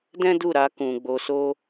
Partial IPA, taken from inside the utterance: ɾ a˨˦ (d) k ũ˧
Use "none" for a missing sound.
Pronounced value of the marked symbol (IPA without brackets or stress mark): none